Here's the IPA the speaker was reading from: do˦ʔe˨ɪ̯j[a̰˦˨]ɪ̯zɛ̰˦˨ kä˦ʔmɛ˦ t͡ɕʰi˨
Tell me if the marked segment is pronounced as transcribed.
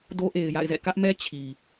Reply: yes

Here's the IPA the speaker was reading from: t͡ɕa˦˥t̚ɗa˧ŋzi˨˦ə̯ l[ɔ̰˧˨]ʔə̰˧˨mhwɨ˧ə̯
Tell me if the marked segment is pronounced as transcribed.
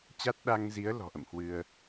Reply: no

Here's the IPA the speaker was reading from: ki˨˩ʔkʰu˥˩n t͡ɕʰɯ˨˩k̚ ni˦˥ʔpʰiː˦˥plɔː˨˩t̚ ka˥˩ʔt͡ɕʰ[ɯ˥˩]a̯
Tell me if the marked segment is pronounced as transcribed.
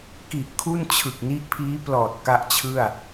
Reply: yes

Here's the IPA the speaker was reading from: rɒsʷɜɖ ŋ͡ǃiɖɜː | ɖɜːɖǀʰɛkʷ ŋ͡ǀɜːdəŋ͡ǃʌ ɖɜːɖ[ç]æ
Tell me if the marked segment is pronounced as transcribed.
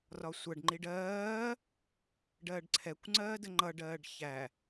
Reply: yes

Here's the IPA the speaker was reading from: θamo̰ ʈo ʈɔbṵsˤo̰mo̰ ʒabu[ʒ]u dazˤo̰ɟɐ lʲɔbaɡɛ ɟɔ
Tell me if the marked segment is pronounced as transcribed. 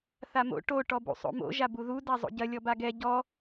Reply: no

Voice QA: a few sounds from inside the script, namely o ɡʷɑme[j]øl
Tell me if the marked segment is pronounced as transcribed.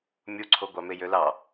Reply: yes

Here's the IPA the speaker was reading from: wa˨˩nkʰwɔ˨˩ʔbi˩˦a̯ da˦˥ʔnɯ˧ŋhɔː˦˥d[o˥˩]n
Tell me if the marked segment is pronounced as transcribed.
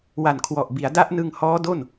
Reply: yes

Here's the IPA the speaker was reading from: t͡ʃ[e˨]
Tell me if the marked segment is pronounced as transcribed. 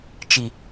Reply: no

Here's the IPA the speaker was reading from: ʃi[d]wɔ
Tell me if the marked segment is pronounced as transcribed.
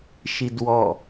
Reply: yes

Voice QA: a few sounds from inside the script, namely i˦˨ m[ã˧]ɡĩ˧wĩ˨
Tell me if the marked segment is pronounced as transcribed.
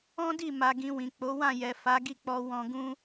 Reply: no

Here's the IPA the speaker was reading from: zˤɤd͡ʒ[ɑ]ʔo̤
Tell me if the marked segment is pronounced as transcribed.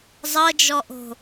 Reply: no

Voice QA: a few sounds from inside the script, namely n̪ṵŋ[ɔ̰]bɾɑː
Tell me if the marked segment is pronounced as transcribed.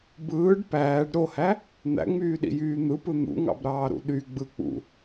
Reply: no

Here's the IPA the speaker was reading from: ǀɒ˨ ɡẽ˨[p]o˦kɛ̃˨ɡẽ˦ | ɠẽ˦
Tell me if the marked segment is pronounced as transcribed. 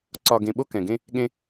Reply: no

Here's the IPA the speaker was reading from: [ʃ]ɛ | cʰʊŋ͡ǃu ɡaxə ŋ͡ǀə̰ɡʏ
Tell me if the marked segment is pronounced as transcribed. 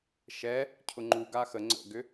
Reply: yes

